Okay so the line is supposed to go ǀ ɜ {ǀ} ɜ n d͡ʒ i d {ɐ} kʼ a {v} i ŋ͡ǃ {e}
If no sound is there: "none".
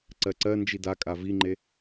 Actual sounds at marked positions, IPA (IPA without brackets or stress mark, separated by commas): ǀ, a, v, e